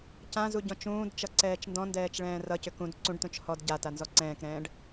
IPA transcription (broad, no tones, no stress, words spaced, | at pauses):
cãzu ɟɔ̃t͡ʃũːdt͡ʃʌ ǀɛːt͡ʃndɔ̃ndɛːt͡ʃ ɭɛ̃ːrʌcʏ kũd ǀũɖtũt͡ʃ hɔd ɟata nzɔǀɛ̃ːkɾɛ̃ːɖ